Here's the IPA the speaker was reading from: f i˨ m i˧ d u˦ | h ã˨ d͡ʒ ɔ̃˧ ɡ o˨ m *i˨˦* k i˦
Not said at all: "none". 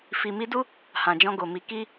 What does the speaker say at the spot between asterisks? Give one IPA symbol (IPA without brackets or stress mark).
i˨˦